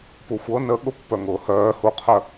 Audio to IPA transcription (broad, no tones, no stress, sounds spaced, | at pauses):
p u xʷ ɤ n ə ɠ ʊ pː œ ŋ ʊː h œː h u qʰ œ